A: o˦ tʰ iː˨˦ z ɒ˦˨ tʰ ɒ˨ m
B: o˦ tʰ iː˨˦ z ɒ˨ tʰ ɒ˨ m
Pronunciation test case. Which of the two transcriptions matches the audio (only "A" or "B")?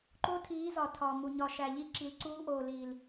B